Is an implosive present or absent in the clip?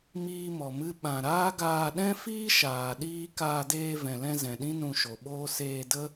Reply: present